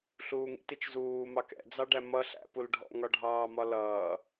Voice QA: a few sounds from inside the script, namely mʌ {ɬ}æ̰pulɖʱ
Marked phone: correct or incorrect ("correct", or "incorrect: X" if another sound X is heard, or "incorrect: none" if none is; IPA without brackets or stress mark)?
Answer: correct